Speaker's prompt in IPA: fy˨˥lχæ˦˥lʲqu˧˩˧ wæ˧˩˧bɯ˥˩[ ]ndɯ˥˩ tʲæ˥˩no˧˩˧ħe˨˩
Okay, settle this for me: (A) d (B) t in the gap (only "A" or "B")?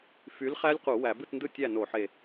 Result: B